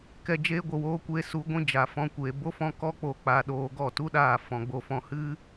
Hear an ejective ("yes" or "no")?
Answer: no